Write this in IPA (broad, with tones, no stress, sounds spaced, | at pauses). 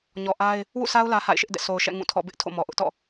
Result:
ɲ ɔ˨ ʔ a˦ ɪ̯ | w ṵ˦˨ s a˦ ʊ̯ l ä˦ h a̰˦˨ ɪ̯ ʃ ɪ˦ ʔ d ɛ̰˦˨ sʰ o˨ ʊ̯ ʃ ɛ̰˦˨ ŋ ũ˦˨ tʰ ɔ̰˦˨ b ɪ˦ ʔ tʰ o̰˦˨ m ɔ˨ ʔ ʊ˦ ʔ t ɔ̰˦˨